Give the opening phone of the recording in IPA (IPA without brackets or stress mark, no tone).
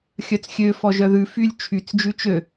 xʲ